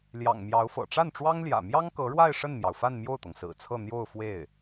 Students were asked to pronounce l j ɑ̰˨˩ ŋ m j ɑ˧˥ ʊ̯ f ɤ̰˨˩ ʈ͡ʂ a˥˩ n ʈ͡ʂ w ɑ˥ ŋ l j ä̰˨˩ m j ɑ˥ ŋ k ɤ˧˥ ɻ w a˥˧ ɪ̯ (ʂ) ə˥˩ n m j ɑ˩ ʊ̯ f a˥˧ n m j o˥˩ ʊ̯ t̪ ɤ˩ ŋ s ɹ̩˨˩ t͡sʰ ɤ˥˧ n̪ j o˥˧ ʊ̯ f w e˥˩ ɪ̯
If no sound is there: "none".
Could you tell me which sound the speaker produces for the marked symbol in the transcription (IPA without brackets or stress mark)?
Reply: ʂ